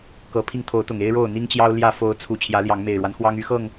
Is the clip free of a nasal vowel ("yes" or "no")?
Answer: yes